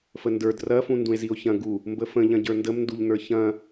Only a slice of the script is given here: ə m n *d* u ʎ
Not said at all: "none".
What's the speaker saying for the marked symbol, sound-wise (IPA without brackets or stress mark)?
d